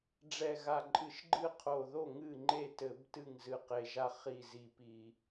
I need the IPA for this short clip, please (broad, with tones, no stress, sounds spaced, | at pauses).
ɖ͡ʐ ɛ˧˩ ɣ a˧˩ ǃʼ ɨ˧˩˧ ʃ ɡ͡ǃ ɨ˥˩ qʰ o˧˩ ð o˥˩ ŋ ɨ˥˩ ŋ͡ǃ e˥˩ t ɘ˧˩˧ b t ɨ˥˩ ŋ z ɨ˧˩ q e˧˩ ʒ a˥˩ χ i˧˩ z i˧˩ p i˧˩˧